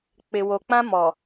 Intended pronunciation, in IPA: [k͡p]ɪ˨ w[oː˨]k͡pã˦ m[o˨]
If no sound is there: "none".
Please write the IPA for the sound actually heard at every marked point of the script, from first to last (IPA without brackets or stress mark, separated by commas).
k͡p, o˨, ɔ˨